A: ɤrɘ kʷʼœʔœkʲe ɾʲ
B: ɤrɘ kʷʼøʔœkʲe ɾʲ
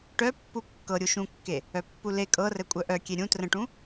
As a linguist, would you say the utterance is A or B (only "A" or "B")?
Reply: A